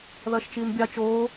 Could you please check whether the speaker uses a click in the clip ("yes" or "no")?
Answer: no